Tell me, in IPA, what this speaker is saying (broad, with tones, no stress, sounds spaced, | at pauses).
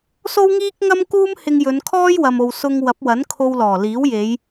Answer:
s o˥ w ŋ iː˥ k̚ ŋ ɐ˥ m k uː˥ m h ɪ˧ ŋ j ɵ˨˧ n kʰ ɔː˥ j w ɐ˨ m o˨ w s ʊ˧ ŋ w ɐ˨˥ p̚ w ɐ˨˥ n kʰ o˧ w l ɔː˨˩ l iː˨˥ w j e˨˧ j